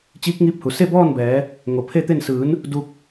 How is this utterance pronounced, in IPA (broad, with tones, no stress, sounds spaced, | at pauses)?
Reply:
t͡ɕ iː˧˥ k̚ ŋ iː˧˥ p̚ h u˩ s e˥˨ b ɔː˥˨ n b ɛː˩˧ | ŋ o˩ pʰ e˥˨ t̪ e˥˨ n s ɯː˩˧ n | d u˧ k̚